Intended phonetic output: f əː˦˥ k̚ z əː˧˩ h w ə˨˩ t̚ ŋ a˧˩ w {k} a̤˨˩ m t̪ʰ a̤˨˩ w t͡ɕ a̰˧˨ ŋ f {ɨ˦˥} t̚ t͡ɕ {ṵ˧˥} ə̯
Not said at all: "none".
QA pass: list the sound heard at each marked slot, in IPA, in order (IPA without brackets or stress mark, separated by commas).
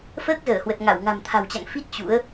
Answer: ŋ, i˦˥, ṵ˧˥